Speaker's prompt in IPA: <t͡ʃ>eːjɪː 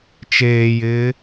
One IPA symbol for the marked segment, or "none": t͡ʃ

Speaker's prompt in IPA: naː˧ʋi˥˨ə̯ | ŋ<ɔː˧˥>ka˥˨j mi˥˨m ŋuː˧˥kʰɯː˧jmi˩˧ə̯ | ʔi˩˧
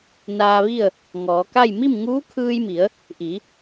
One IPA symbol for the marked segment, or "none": ɔː˩˧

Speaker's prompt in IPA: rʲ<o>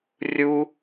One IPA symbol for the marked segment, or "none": u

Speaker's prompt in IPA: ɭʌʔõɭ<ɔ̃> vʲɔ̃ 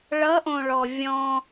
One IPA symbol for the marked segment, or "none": ɔ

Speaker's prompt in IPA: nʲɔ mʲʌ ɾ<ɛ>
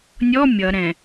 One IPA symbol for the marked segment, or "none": ɛ̃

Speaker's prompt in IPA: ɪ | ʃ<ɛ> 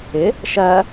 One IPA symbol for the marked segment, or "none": ɜ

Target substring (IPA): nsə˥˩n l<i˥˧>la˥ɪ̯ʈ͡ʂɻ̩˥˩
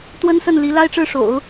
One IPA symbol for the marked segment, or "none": i˧˥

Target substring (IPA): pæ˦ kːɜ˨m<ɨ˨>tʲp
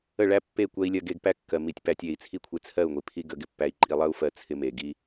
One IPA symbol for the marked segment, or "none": i˨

